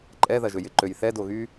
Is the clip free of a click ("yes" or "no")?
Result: no